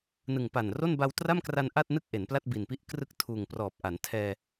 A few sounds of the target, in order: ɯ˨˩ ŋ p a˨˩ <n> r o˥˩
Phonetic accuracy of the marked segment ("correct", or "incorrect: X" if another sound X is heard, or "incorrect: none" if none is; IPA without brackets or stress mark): correct